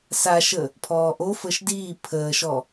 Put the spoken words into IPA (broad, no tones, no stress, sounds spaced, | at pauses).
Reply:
s a ʃ ə | pʰ ɔː ʔ o f əː ʃ d iː pʰ əː ʃ ɔ